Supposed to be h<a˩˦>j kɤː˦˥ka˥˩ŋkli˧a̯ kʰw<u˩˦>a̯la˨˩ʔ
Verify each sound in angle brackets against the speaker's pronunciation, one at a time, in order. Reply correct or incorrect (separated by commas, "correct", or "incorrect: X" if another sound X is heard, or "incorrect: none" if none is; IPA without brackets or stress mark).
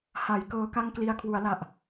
correct, correct